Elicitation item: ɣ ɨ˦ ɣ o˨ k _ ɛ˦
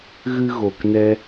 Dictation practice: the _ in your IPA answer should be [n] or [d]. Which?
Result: n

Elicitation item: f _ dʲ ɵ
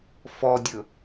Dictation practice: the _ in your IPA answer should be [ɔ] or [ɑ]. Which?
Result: ɔ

